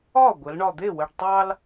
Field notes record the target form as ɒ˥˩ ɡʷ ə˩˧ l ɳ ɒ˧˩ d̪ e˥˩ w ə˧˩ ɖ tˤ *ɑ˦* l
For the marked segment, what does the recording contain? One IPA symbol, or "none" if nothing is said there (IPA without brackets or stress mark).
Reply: ɑ˦